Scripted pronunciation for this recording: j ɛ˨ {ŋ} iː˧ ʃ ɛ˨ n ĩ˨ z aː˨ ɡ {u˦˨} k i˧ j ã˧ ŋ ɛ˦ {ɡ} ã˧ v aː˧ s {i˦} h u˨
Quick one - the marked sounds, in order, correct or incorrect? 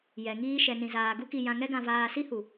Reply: correct, incorrect: u˦, correct, correct

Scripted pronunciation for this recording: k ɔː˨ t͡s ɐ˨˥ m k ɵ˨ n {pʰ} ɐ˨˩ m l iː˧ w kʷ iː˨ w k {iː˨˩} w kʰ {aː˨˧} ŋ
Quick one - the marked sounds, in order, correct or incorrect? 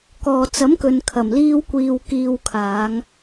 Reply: incorrect: kʰ, incorrect: iː˨, correct

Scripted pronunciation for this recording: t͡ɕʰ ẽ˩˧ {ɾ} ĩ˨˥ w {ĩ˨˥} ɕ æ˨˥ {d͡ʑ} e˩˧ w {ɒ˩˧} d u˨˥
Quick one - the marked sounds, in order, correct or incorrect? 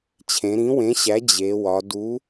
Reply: correct, incorrect: ẽ˨˥, correct, correct

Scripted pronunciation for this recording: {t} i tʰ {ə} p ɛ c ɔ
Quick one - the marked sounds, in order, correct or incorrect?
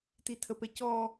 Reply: correct, correct

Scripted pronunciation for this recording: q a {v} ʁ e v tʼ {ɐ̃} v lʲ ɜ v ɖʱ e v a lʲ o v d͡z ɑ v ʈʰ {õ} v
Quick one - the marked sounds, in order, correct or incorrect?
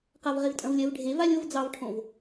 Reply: correct, correct, correct

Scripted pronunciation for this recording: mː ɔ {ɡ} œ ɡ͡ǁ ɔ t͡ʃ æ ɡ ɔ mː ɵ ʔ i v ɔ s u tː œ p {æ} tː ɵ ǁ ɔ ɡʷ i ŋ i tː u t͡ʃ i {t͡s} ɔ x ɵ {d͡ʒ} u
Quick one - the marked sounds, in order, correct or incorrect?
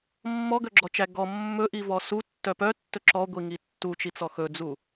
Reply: correct, incorrect: œ, correct, incorrect: d͡z

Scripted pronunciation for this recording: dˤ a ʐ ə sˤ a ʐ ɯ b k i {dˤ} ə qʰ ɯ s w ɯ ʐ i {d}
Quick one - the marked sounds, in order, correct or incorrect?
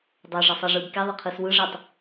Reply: incorrect: ðˤ, incorrect: tˤ

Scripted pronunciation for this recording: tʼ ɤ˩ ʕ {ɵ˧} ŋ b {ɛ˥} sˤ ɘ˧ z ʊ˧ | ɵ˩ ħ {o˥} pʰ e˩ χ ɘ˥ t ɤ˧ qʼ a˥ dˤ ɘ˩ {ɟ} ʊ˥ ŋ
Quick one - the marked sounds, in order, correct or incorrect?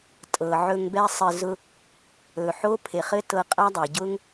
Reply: correct, correct, correct, correct

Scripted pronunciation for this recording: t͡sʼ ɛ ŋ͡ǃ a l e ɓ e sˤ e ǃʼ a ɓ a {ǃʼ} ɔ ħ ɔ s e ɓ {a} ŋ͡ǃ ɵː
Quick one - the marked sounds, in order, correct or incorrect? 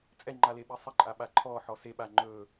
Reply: incorrect: ǃʰ, correct

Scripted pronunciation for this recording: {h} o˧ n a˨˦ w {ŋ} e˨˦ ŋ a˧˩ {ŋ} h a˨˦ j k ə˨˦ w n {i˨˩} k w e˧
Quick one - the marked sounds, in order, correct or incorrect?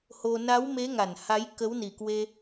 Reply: correct, incorrect: m, incorrect: n, correct

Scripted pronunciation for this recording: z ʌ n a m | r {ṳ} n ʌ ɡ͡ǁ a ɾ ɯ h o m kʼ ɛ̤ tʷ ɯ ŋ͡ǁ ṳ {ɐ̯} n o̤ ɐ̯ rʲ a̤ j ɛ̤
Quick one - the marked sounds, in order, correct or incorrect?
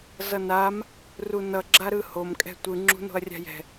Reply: incorrect: u, incorrect: none

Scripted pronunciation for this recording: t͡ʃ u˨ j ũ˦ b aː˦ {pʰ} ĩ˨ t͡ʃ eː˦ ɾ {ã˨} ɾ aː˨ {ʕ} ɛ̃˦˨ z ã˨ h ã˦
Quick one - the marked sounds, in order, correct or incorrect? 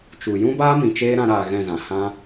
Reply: incorrect: m, incorrect: ã˧, incorrect: ɣ

